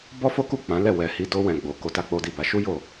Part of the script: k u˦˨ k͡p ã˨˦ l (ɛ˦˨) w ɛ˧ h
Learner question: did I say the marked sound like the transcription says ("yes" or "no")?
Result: yes